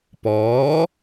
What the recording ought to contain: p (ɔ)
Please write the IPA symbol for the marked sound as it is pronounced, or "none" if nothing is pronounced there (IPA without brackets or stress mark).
ɔː